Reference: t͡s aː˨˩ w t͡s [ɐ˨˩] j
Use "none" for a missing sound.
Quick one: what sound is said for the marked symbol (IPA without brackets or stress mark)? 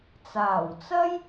ɐ˥